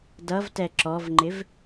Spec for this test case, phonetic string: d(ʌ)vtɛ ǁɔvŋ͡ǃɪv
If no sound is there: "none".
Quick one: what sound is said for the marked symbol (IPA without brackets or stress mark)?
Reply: ʌ